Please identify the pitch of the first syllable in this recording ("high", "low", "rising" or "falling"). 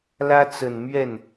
high